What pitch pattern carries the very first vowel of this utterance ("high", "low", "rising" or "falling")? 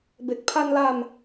low